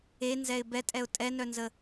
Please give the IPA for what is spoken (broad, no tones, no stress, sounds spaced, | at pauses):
e n z ɛ ɪ̯ b ɛ tʼ ɛ ʊ̯ tʼ ɛ n œ n z ə